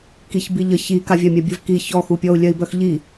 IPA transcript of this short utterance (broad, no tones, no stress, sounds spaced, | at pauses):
k i ç b i ʎ ə ç i k a vʲ a mʲ a bʲ ə v k i ç ɔ x u pʲ ɔ u̯ lʲ œ i̯ b œ x ʎ i